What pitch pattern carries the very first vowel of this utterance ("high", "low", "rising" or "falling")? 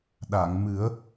low